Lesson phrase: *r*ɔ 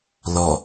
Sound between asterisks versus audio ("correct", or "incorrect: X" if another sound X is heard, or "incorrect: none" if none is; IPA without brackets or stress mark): incorrect: l